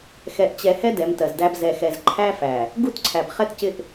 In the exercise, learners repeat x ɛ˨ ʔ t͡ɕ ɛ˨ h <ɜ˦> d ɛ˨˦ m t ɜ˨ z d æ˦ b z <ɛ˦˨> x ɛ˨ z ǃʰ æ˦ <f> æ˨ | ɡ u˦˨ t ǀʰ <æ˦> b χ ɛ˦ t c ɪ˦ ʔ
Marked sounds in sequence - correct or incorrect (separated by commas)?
incorrect, incorrect, correct, incorrect